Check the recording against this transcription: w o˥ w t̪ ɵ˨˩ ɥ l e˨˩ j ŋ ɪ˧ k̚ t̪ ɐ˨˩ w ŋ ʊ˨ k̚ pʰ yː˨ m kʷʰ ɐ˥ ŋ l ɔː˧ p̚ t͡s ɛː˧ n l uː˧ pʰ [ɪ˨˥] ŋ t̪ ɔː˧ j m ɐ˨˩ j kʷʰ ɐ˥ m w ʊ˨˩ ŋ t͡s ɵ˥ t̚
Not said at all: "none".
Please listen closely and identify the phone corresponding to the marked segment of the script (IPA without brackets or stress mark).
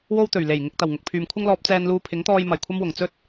ɪ˨˥